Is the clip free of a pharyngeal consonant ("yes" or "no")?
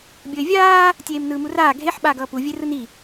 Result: no